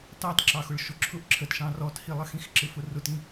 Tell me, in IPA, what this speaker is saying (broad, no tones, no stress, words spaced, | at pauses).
tɑtǁɑxʊɭ ʃʊǁʰʊʔ ǁʰətʃɑ̃ rɔthilˠəxĩx ǁɪfʊrʊtĩ